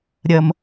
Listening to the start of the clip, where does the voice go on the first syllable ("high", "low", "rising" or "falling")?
low